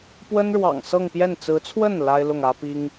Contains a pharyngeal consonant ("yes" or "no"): no